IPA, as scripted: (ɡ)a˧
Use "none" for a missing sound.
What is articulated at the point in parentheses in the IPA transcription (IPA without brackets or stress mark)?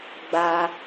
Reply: ɡ͡b